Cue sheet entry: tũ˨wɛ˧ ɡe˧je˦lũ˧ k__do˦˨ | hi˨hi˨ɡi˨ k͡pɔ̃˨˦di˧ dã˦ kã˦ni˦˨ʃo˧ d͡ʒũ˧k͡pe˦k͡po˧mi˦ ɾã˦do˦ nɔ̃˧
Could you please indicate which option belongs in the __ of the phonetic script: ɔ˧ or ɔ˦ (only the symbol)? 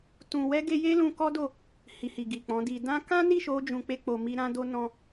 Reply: ɔ˦